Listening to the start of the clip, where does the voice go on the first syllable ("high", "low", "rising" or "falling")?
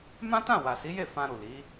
high